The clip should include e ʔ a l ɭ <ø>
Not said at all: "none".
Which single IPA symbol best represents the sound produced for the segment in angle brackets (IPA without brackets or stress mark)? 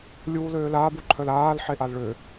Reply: ø